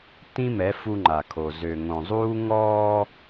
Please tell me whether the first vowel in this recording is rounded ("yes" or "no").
no